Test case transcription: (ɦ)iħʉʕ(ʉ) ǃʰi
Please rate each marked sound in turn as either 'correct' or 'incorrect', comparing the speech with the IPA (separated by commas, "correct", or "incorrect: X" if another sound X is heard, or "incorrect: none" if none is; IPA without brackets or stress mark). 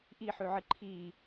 incorrect: ʔ, incorrect: ɨ